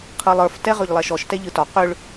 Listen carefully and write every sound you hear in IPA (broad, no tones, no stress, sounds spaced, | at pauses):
qʰ ɯ lˠ ə˞ f t ɛ ʁ ø ʎ lˠ ɛ ʃ ɔ ʃ t ɛ ʎ ɯ t ɒ q ø ɭ